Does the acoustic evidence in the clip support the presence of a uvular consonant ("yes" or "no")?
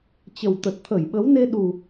no